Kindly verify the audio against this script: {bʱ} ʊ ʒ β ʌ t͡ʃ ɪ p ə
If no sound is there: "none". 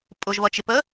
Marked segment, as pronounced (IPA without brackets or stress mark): pʼ